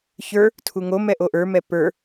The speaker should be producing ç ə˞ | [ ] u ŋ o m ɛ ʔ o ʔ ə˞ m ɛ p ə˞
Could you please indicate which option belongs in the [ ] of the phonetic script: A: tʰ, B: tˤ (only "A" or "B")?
A